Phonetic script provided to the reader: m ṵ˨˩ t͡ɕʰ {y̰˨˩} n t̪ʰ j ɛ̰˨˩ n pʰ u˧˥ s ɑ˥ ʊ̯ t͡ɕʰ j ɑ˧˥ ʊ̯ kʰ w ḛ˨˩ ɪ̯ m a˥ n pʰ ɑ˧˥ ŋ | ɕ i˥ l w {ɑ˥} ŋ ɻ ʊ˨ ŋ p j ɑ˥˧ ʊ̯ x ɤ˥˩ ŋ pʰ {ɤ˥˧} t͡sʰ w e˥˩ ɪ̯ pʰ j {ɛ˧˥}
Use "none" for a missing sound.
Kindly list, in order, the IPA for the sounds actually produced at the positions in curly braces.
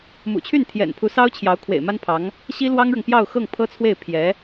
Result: y˥˩, ɑ˥, ɤ˥, ɛ˧˥

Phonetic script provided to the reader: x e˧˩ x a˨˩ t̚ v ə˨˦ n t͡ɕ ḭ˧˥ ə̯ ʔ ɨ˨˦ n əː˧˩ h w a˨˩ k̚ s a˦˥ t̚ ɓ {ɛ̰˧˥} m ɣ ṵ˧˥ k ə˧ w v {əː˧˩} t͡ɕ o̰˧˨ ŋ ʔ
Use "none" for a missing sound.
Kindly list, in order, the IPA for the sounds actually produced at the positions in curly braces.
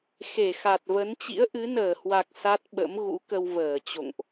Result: ə̰˧˥, əː˧˩

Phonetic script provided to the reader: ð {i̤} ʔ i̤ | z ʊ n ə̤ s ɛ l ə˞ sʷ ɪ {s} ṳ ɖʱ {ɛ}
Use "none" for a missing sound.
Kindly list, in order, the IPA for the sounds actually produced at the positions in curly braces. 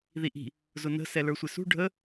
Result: i, s, ə

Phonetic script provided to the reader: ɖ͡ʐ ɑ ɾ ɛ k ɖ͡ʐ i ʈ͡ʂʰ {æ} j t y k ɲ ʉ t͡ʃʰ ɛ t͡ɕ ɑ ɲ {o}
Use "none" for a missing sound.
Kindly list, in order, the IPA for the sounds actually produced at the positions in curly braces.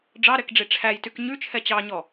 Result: æ, ɔ

